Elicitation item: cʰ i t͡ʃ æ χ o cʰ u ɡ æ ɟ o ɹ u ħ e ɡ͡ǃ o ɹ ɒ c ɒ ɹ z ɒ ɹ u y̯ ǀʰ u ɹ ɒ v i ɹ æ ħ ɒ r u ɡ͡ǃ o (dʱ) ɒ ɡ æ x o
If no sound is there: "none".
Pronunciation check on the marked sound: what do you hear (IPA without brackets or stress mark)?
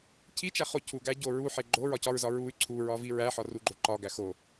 ǃ